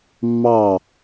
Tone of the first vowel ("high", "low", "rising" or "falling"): falling